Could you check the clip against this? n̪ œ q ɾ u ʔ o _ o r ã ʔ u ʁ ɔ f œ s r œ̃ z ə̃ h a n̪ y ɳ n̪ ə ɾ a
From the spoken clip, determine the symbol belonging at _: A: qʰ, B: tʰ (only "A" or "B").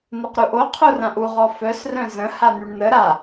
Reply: A